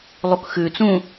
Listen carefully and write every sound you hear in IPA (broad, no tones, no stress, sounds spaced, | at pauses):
lˠ u k x ʉ t͡s ũ